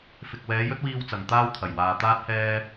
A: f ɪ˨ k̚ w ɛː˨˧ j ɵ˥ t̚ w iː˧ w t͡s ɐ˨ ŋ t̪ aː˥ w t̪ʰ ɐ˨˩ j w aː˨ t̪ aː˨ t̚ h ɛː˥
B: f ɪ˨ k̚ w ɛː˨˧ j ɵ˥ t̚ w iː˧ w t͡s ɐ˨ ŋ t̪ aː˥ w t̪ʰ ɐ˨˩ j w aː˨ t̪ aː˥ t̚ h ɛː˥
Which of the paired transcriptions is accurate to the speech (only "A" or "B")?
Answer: B